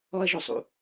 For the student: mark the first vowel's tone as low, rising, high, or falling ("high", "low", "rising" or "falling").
high